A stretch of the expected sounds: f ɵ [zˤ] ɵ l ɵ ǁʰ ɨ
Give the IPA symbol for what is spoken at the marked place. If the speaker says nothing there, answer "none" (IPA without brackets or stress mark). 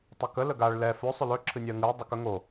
sˤ